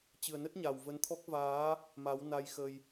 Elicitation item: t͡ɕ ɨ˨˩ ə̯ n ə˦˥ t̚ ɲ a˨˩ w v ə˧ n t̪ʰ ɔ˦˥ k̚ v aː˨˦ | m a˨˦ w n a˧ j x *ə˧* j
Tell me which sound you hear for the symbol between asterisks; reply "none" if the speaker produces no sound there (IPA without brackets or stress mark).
ə˧